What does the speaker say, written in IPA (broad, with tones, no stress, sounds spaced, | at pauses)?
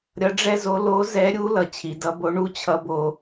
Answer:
ɾʲ ʌ˧˥ ɖ͡ʐ ɛ˥ z o˧˥ l o˧˥ z ɛ˧˥ ɾʲ u˧˥ l ʌ˩˧ t͡ɕʰ i˩˧ d ʌ˧˥ b o˧˥ ɳ u˥ t͡ɕʰ ʌ˧˥ b o˧